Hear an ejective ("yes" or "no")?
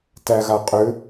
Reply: yes